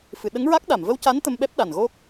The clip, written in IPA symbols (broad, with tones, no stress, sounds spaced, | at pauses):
f ɨ˨˩˨ ɗ ə˧˥ ŋ ɹ a˦˥ k̚ ɗ a˨˩˨ m v ə˧ w c a˧˥ n t̪ ə˧ m ɓ ɛ˦˥ p̚ ɗ a˨˩ n ɣ o˦˥ k̚